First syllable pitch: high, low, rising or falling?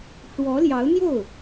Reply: rising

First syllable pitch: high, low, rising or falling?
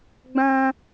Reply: high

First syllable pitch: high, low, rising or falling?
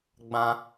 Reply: high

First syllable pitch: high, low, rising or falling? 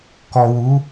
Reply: low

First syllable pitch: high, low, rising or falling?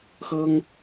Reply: high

